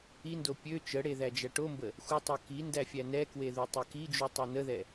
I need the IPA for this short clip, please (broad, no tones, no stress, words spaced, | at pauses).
indo pʲø t͡ʃəɽe ðæd͡ʒæʈombə | xʷətˤo ki ndæfʲænɛkwe ðutˤøkid͡ʒu tˤonəðɛ